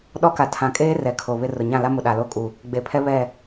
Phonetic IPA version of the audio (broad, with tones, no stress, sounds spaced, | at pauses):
ɗ ɔ˦ k a˨ tʰ ã˨ kʼ eː˦ r ɛ˨ kʰ o˨ β ɪ˦ r ʊ˨ ɲ ã˦˨ l a˦ m ʊ˨ ɗ a˨ l o˦˨ kʼ u˨ | ɡ͡b e˨ pʰ ɛ˦ β ɛ˦˨